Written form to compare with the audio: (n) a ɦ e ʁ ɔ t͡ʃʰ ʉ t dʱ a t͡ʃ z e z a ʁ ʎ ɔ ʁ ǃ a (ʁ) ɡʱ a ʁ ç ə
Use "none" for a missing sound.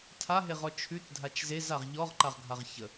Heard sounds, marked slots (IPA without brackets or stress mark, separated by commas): tʰ, ʁ